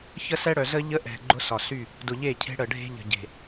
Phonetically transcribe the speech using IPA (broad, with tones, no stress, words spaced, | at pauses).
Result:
çə˦sɛ˦ɽœ˨ zə˦ ʎə˦ʔɛ̤˨ ɡ͡ǃʊ˦sɒ˨sy˦˨ | dʊ˨ʎe˦˨cʰe̤˦ ɽə˨ ɖʱe̤˦ʎə̤˨ɟe̤˨